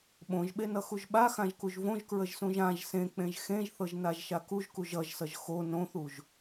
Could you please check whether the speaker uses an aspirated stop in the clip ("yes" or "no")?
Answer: no